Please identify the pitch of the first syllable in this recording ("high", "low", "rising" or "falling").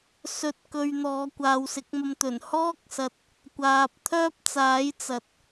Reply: rising